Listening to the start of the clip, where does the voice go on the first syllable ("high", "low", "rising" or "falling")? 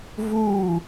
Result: falling